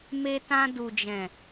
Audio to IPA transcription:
m e˧ t ã˧ d u˨ d͡ʒ ɛ̃˨

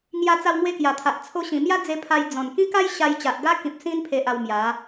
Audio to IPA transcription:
ŋ j a˧ t͡s a˧ w ŋ w e˧ k j a˨˩ t̪ʰ a˨ ʔ t͡sʰ o˧ ɕ ĩ˨˩ m j a˦ d͡z e˧ pʰ a˧ j d͡z ɔ̃˨˩ n k ĩ˦ k a˦ j ɕ a˧ j t͡ɕ a˨ ʔ ɡ a˦ k ĩ˨ p̚ s ĩ˧ n pʰ e˨ ʔ a˧ w m j a˨˦

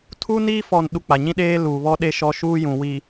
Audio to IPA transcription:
tʰ u˦ n iː˦ f ɔ˦˨ n ɗ u˦ k͡p a˨ ɲ ĩ˦ ɗ eː˦ l uː˨ β ɔ˦ ɗ e˦ ʃ ɔ˦ ʃ uː˦ j ũ˨ w i˨

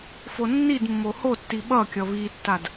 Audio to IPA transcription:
f o nː i d mː o h o tː i ɓ ʌ kʲ ʌ β i tː a d

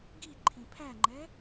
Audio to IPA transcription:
ɡ i ǃʰ ĩ pʰ æ ŋ͡ǃ ɛ

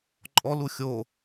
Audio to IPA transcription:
ǃʼ ɔ l u xʲ o

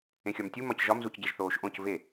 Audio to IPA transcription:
ẽ xʲ ɒ m tʲ u m ɒ c ʒ ɒ m z u c ɟ e ʒ θ oː ʃ ʔ õ c v e

